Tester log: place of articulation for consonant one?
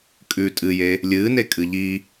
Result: velar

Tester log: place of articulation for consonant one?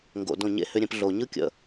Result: velar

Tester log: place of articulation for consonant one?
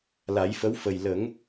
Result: alveolar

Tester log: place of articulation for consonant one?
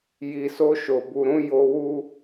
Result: palatal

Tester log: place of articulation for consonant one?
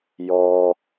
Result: palatal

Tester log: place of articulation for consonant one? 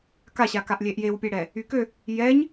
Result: velar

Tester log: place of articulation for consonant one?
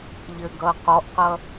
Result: palatal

